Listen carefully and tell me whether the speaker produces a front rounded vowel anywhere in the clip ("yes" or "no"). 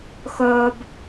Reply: yes